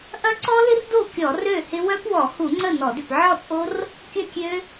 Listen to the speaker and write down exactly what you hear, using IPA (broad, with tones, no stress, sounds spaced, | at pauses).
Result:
ʔ ɐ˦˥ ǀ ɔ˦˥ l ɪ˦˥ r d o˥˩ kʲ ɔ˧˩˧ r ø˥˩ h ɪ˦˥ w œ˦˥ p w ɔ˧˩˧ h u˧˩˧ ŋ͡ǀ ə˥˩ n ɔ˧˩˧ d ʏ˥˩ p ʕ ɔ˥˩ t͡sʼ o˦˥ r | kʲ ɐ˥˩ kʲ ø˦˥